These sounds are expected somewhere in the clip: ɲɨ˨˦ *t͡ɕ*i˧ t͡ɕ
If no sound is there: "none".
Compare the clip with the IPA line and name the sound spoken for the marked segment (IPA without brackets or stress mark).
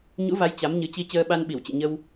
t͡ɕ